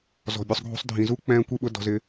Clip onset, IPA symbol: z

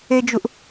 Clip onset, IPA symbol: e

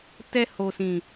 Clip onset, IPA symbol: t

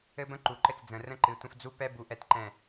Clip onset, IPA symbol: ɘ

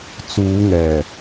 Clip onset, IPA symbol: t͡s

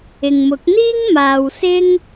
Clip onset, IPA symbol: ɪ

